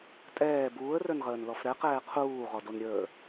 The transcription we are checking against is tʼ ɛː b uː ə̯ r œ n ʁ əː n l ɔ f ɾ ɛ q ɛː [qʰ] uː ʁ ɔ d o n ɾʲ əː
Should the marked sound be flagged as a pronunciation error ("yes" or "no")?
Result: no